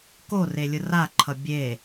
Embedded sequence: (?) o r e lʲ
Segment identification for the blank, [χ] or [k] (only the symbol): k